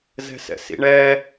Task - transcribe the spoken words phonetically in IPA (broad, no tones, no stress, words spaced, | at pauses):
zɛ̤sɛ̰sḭɳɛ